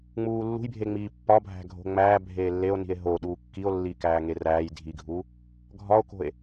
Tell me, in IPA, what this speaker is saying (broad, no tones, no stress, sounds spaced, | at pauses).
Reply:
ŋ͡m uː lː ṳ j bʱ e ŋ͡m iː pː ɒ bʱ æ̤ ɡʱ o̤ ŋ͡m æː bʱ eː lː e o̯ n i̤ e̯ ɦ o ɗ uː kː i o̯ lː iː k æː ŋ e r æː j dʱ i ɡʱ uː | ɡʱ ɒ o̯ k o̤ e̯